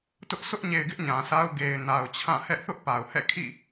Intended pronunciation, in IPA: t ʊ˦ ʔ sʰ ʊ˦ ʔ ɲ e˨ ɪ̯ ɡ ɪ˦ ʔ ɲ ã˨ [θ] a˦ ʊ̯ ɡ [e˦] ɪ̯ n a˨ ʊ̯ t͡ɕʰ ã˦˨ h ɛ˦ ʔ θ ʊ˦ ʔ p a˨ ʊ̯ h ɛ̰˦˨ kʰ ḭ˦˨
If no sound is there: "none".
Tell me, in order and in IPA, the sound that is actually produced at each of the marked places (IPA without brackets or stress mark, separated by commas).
s, e˨